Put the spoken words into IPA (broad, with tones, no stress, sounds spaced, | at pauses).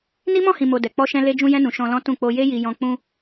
n i˦ m ɔ̃˦˨ h ĩ˨ m o˨ d ɛ˨ k͡p ɔ˧ ʃ ɛ̃˧ l e˧ d͡ʒ ũ˧ j ɛ̃˧ n ũ˨ ʃ ɔ̃˧ l ɔ̃˦ t ũ˦˨ k͡p o˧ j e˦ j i˧ j ɔ̃˧ k͡p ũ˧